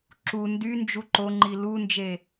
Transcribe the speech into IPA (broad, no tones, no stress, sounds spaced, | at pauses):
ǁ u n d y n d͡ʒ u ǃ o ŋ͡ǃ i l u n d͡ʒ e